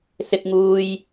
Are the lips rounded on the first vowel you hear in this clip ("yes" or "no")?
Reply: no